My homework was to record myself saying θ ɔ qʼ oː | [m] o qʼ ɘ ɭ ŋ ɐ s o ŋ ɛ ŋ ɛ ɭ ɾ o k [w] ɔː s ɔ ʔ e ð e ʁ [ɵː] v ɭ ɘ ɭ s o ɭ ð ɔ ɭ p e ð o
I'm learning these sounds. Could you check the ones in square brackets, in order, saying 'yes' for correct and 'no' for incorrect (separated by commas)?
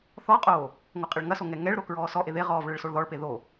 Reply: no, no, no